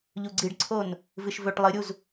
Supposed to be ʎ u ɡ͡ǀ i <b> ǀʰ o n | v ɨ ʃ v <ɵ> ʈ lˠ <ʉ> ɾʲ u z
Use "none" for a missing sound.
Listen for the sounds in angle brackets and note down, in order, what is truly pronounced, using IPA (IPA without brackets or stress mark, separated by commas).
ɖ, ɵ, ɨ